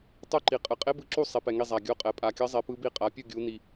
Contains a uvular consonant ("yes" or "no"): yes